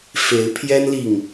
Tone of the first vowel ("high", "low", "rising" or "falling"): rising